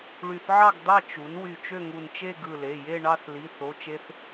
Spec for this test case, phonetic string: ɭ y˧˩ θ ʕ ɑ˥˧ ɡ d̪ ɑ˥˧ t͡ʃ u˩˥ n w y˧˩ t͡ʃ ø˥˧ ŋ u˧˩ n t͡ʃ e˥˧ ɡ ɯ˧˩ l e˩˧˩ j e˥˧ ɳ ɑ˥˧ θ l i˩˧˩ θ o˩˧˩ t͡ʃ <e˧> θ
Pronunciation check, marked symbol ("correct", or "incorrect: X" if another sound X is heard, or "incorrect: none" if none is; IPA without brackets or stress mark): correct